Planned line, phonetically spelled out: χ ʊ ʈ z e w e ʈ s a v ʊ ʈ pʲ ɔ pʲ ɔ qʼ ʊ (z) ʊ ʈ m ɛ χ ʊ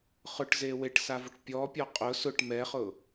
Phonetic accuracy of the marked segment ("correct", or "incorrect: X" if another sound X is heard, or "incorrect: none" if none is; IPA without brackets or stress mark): incorrect: s